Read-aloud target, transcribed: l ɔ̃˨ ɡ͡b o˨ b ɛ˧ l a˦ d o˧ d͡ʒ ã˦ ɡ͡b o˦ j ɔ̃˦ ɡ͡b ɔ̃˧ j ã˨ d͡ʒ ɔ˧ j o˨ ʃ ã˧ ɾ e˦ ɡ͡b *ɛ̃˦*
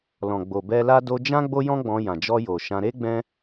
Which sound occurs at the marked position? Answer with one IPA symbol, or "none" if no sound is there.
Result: ɛ̃˦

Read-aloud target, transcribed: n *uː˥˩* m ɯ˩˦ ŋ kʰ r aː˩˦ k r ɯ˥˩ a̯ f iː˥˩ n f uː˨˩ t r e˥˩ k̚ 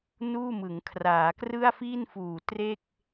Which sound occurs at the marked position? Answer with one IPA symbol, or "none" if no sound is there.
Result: uː˥˩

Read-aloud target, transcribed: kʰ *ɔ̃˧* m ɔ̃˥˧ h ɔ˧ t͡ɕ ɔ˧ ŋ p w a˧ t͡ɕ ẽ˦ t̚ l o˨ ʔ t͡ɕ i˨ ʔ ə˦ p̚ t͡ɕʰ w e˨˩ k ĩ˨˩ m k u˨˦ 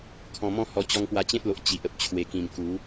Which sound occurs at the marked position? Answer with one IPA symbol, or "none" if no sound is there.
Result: ɔ̃˧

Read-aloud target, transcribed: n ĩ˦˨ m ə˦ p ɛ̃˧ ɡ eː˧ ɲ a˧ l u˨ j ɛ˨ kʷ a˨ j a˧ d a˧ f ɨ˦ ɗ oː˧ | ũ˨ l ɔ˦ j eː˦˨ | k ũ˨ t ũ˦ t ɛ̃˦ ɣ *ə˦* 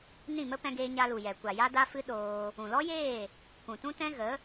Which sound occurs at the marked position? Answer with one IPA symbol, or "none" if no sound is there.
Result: ə˨˦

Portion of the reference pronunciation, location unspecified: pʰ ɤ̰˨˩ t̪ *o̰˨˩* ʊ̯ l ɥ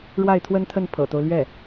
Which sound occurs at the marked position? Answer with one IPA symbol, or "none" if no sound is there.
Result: o˦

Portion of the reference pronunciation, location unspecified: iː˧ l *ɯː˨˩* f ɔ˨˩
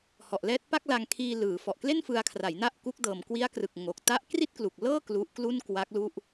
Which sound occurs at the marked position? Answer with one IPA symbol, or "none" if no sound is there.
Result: ɯː˩˦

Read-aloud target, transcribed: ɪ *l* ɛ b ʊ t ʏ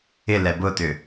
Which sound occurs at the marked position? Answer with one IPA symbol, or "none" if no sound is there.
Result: l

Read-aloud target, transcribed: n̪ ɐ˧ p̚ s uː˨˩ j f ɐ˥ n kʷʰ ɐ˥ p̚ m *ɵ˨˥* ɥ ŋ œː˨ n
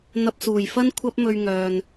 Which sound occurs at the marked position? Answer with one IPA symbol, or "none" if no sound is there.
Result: ɵ˧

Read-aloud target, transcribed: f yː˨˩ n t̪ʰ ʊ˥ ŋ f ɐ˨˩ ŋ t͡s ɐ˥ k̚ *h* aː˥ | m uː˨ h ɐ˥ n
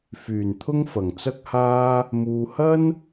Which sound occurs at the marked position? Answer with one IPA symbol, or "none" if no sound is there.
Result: h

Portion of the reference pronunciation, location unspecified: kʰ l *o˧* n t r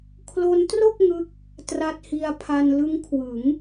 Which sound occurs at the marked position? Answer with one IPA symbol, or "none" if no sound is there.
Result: o˧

